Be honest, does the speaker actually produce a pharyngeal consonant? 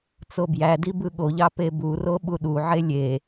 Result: yes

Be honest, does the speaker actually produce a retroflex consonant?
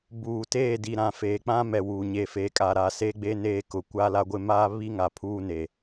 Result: no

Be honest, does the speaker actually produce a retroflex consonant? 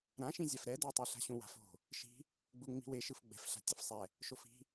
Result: no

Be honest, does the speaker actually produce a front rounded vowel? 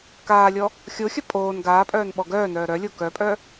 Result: yes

